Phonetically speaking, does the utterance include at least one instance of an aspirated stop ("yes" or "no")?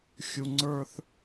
no